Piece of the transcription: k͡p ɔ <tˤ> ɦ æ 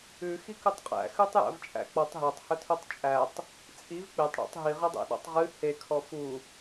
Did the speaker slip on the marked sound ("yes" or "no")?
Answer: no